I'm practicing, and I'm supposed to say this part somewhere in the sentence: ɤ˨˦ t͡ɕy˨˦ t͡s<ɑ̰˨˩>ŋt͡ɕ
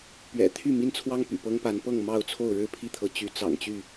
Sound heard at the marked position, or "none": ɑ̰˨˩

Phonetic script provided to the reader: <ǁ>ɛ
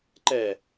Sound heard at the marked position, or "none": ǃ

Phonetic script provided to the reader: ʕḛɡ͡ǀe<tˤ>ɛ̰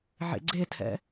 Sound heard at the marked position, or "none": tʰ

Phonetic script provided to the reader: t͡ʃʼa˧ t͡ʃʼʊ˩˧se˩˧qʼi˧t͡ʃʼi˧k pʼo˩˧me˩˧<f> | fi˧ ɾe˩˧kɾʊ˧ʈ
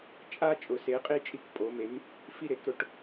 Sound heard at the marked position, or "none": m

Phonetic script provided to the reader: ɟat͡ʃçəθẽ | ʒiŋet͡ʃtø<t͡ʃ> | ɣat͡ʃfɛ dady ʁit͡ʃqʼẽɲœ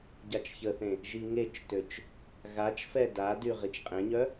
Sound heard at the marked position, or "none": t͡ʃ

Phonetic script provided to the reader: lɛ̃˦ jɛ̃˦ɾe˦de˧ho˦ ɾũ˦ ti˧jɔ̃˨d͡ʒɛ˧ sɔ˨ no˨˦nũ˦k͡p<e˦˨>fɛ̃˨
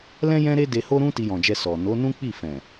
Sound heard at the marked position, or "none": i˦˨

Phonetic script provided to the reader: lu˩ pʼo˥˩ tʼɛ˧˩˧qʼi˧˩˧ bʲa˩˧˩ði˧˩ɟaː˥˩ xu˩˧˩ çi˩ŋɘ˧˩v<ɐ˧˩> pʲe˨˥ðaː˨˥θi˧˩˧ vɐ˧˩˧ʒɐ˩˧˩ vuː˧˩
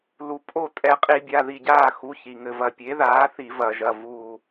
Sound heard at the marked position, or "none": ɐ˧˩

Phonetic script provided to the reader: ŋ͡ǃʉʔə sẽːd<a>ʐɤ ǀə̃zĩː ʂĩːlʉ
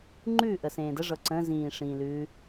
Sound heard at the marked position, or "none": ə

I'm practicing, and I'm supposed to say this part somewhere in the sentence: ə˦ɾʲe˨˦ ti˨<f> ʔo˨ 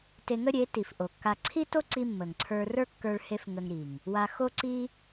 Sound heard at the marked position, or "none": f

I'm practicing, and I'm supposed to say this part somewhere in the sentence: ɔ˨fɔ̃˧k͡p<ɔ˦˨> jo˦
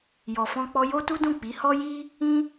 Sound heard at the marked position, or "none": ɔ˧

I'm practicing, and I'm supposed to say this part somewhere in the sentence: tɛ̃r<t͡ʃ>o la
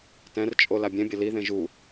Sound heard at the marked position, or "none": t͡ʃʼ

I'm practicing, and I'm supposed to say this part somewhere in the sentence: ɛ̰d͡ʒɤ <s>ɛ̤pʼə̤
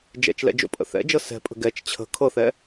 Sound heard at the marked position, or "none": s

